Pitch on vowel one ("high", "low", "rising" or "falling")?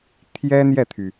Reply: high